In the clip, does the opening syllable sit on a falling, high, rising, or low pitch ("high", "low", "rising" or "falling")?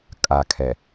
low